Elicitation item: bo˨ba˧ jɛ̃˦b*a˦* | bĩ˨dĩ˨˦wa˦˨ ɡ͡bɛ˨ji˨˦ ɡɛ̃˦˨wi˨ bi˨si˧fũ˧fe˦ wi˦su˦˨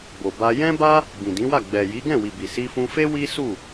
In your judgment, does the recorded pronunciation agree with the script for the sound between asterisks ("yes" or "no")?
yes